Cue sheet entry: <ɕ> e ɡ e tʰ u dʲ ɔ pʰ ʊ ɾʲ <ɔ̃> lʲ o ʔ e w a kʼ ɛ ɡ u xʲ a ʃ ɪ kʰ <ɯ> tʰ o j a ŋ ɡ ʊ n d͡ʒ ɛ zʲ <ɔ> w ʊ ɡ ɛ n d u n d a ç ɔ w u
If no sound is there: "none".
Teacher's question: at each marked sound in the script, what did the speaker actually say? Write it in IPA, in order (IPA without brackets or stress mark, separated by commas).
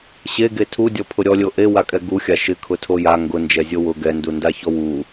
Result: ɕ, ɔ, ʊ, o